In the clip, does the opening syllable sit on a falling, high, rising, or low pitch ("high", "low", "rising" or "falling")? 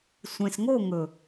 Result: low